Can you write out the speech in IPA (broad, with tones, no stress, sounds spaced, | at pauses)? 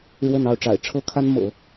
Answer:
ɻ w ə˥˧ n ɑ˥˩ ʊ̯ ʈ͡ʂ a̰˨˩ ɪ̯ ʈ͡ʂʰ ɤ˥ kʰ a˥ n m ɤ̰˨˩˦